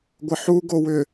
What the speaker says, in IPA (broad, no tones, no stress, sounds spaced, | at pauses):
ɡʷ ə ħ u ɡ o w ʏ